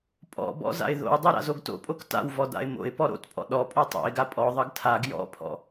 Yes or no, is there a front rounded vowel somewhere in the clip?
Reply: no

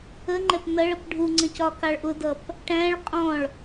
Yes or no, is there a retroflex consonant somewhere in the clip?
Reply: yes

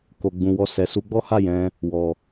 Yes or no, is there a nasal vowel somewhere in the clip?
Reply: yes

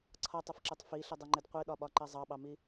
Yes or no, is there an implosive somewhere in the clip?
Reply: yes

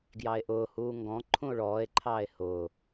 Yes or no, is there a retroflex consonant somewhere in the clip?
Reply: yes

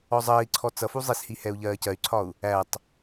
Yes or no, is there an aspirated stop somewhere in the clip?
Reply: yes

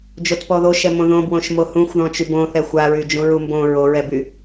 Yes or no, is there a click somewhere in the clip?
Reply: no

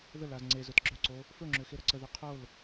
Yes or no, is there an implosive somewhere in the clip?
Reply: no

